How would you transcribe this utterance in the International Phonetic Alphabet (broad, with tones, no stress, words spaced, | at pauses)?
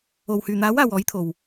o˨w hyː˨n̪aː˨˥waː˨w ɔː˨˥jt̪ʰo˨w